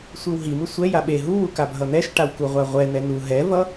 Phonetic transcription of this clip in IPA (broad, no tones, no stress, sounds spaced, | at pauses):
sʷ i w ɦ i m ɯ sʷ ɛ j a ɓ e ɦ u w u k a bʱ ʌ n̪ ɛ ʃ ʈ a w k u ʁʷ a ʁʷ ɛ n̪ ɛ n u ɦ ɛ v ʌ